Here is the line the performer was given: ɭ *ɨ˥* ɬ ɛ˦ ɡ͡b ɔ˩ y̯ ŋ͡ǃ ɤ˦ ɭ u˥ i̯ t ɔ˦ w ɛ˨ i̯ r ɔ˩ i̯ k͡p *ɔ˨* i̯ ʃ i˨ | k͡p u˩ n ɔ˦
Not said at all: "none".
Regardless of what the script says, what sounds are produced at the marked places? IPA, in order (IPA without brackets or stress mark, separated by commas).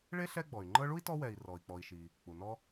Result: e˥, ɔ˨